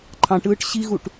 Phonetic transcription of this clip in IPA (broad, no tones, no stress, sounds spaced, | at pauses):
ǃʰ ɑ̃ ʈ ɯː ʈ ɕ i ɣ u ʈ